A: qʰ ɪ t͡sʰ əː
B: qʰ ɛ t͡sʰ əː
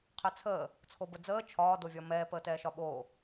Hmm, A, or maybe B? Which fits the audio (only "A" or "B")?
B